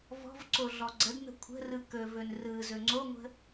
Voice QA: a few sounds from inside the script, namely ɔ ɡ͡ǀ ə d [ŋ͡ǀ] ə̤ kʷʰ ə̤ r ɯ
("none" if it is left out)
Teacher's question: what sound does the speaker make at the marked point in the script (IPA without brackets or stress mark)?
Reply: n̪